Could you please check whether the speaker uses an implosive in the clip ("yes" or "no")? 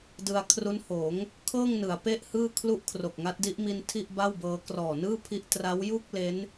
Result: no